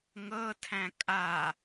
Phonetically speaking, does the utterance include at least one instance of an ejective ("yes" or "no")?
yes